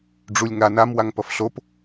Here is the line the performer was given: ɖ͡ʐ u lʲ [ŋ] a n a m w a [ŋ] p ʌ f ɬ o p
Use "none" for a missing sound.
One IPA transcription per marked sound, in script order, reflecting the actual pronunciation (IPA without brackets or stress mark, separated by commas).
ŋ, ŋ